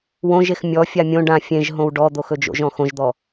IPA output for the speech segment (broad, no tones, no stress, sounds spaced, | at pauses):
w õ ʒ e x mʲ ɔ fʲ a mʲ õ ɖ ã fʲ ẽ ʒ ɦ õ w ɖ ɔ d̪ o x ɵ d͡ʒ o̰ ʒ ɔ̃ x õ ʒ d̪ ɔ